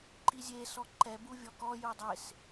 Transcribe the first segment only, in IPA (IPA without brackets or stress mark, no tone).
ǃ